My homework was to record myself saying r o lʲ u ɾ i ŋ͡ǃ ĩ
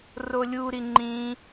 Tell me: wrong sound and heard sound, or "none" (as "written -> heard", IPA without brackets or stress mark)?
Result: none